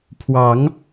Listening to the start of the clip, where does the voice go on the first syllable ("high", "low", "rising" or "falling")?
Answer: rising